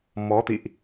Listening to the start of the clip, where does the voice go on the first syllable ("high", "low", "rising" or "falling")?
rising